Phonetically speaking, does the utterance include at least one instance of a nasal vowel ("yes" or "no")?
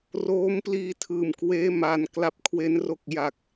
no